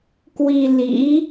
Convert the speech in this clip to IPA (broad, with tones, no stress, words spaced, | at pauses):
kwi˧lḭ˧˥